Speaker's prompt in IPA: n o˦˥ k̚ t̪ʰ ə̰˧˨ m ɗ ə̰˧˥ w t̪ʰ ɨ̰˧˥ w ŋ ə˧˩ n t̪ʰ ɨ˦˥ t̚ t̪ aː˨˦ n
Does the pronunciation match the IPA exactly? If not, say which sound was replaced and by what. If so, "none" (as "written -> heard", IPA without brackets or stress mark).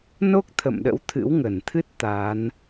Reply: none